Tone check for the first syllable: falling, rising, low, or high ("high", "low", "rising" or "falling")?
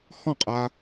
falling